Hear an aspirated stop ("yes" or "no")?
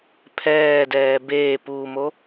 yes